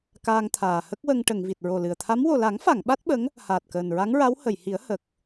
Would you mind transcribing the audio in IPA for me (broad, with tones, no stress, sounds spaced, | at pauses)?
k aː˧ ŋ t̪ʰ aː˨˩ h ə˦˥ k̚ w ə˧ ŋ ʈ ə˨˩˨ ŋ v i˨˩ t̚ ɹ o˨˩ l ɨ˨˩ ə̯ t̪ʰ a˧˥ m w o˨˩ l a˨˩˦ ŋ f a˨˩˨ ŋ ɓ a˦˥ t̚ ɓ ə˧˥ ŋ | h aː˨˩ t̚ k əː˨˩ n ɹ a˧˥ ŋ ɹ a˧˥ w h ə˨˩˨ j h i˨˩˦ ə̯ h ə˨˩ k̚